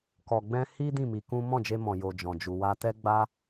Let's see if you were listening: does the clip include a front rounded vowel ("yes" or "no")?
no